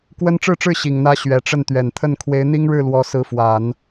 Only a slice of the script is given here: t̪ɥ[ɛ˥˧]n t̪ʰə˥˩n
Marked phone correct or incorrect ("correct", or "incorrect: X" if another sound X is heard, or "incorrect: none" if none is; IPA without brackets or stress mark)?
incorrect: ɛ˨˩